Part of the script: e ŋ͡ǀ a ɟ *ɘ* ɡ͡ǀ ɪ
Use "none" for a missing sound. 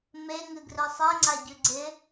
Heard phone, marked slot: ʉ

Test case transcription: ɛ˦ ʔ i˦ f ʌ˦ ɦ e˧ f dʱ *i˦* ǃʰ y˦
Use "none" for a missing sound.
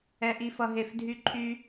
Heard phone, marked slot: y˦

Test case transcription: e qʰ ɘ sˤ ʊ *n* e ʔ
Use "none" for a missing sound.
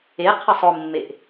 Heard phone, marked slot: mː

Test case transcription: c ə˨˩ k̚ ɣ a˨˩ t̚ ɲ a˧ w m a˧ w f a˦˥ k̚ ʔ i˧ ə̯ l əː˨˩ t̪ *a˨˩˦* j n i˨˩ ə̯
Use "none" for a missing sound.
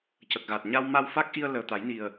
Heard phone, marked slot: a˨˩˦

